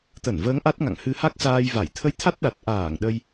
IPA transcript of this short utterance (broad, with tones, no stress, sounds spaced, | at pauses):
t̪ ə˧˩ n v əː˨˦ ŋ ʔ a˦˥ t̚ ŋ a̰˧˨ ŋ h ɨ˧ h a˦˥ k̚ s aː˧ j v a˧˩ j t̪ʰ ə˧ j t̪ʰ a˦˥ t̚ ɗ a˨˩ t̚ ʔ aː˧˩ ŋ ɗ ə˧ j